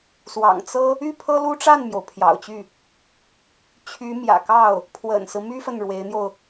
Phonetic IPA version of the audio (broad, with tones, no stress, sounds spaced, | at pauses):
s w ɑ̰˨˩ ŋ t͡s ɤ˥ | y˥˩ pʰ ɤ˥ l u˥ ʈ͡ʂ a˥˩ n m j o˩ ʊ̯ pʰ j ɑ̰˨˩ ʊ̯ t͡ɕ y˥˩ | t͡ɕʰ y˧˥ m j ä̰˨˩ k ɑ˥˩ ʊ̯ | pʰ w ə̰˨˩ n s ɹ̩˦ m y˥ f ə˨ n ɻ w e˧˥ ɪ̯ n̪ j o˧ ʊ̯